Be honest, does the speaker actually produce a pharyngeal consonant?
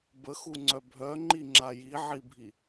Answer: yes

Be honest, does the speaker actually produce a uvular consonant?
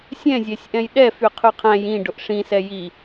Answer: yes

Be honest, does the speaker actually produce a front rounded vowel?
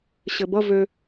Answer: yes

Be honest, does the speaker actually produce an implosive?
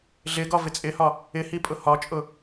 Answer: no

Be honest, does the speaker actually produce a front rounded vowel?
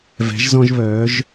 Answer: yes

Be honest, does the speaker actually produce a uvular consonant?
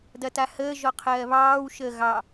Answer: yes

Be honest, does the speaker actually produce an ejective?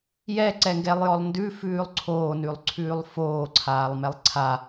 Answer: no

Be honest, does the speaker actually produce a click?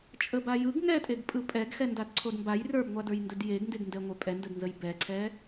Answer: yes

